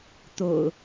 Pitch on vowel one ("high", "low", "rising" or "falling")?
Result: low